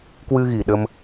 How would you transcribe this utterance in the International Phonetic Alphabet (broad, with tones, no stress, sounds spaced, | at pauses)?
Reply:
k w ɨ˧ ɣ i˨˩ ɗ ə˧ m